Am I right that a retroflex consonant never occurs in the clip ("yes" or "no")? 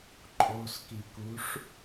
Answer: no